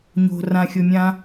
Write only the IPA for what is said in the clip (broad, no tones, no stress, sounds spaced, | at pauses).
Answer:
ɲ o̤ r ã xʲ o mʲ ã